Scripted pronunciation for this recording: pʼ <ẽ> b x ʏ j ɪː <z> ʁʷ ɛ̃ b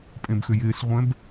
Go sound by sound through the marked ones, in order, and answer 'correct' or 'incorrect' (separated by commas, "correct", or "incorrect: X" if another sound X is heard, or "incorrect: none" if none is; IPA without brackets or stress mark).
correct, incorrect: s